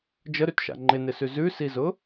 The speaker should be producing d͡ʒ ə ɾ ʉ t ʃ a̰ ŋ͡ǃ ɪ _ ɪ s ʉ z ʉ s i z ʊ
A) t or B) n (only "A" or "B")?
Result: B